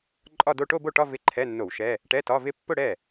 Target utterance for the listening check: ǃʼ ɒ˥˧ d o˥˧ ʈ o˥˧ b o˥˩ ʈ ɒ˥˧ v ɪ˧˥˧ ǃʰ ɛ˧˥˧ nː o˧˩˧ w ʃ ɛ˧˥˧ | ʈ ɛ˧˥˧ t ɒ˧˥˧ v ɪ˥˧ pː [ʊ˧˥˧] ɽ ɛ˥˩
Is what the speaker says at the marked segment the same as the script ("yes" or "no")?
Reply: no